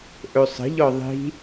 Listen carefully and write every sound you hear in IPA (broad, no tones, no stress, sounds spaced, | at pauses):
ʔ ɵ sˤ ə̤ ʎ ɔ ðˤ i̤